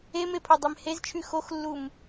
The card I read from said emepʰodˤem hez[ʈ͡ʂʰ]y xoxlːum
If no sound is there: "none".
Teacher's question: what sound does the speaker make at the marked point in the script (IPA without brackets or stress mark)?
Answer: t͡ʃʰ